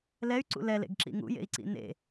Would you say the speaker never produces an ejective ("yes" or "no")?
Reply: yes